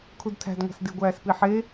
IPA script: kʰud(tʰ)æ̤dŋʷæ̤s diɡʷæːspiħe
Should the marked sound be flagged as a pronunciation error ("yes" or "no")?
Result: no